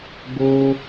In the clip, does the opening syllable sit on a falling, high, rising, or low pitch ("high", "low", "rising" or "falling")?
high